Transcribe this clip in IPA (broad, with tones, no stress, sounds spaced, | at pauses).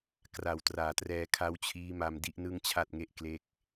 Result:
k r a˨˩ w t r aː˨˩ t r ɛː˧ kʰ a˦˥ w t͡ɕʰ iː˦˥ m a˧ m d i˥˩ ʔ n ɯ˥˩ ŋ t͡ɕʰ a˥˩ t̚ ŋ e˥˩ ʔ k l e˥˩ k̚